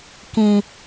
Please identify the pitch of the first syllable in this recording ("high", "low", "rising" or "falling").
high